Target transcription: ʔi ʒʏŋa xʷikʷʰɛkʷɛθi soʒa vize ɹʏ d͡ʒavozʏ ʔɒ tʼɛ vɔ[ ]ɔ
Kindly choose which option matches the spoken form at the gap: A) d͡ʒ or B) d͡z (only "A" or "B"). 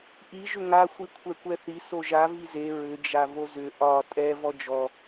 A